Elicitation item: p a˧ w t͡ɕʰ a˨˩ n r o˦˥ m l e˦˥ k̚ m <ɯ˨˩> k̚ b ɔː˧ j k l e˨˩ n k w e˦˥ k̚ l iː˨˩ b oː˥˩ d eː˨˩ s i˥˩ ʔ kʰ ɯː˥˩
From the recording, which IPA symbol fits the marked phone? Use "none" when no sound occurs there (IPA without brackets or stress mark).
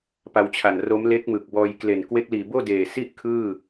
ɯ˨˩